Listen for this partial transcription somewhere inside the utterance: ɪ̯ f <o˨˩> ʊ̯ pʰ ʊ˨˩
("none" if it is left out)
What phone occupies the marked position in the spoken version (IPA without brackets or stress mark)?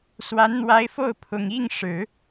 o˥˩